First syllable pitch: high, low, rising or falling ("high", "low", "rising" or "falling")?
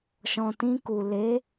low